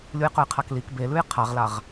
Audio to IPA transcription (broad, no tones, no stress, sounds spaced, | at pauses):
lʲ u j q ɵ j qʰ a k l i k b e l ʉ j qʰ a ʁ l a ʁ